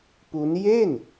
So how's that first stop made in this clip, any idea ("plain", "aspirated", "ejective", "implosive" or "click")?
plain